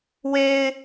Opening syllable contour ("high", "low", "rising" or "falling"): high